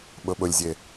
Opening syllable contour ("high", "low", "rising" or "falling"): low